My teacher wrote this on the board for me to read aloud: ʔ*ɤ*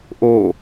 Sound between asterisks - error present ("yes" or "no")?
yes